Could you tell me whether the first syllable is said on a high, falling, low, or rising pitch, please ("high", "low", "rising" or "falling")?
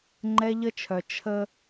high